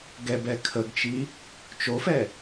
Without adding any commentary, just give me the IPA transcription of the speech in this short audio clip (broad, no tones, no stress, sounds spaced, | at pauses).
ɡ ɛ b ɛ kʰ ə ɡ t͡ʃ i | t͡ʃ o f ɛ